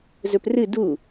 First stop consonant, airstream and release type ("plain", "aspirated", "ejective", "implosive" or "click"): plain